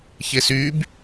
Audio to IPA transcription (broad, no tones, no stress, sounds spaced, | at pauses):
ç e s y b